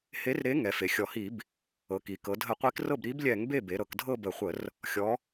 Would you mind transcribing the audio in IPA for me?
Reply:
h e˨˥ r ɾ e˨˥ ŋ ɛ˩˧ f e˩˧ xʲ ɔ˨˩ h i˧˩˧ b | ɤ˩˧ k i˩˧ k ɤ˩˧ dʱ ə˧˩˧ qʷ i˨˥ k r ɤ˥˩ b ɾ i˨˥ b lʲ ɛ˧˩˧ ŋ b e˥˩ b e˩˧ ɾ ɤ˩˧ k dʱ ɤ˥˧ b ə˧˩˧ χʷ ə˧˩˧ r | xʲ ɔ˩˧

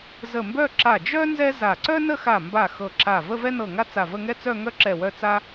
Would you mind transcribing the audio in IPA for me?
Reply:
z ə˧˩ m b œ˥˧ ǁ a˧˩ d͡ʒ œ˥ n z ɛ˥ z a˧˩ ǀ œ˥ n ə˥˧ x a˧˩ m b a˧˩ x ɤ˧˩ ǁ a˧˩ v ə˥˧ v ɛ˥ n ɤ˧˩ ŋ a˥ t͡s a˧˩ v ə˥˧ ŋ ɛ˥ t͡s œ˥˧ ŋ œ˥ ǁ ɛ˧˩ w œ˥˧ t͡s a˥

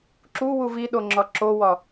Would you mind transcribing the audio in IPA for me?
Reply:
ǁ u w u v i ɗ o ŋ͡ǁ ɒ ǁ o w ɒ

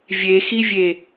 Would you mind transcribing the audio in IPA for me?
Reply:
vʲ e x i vʲ e

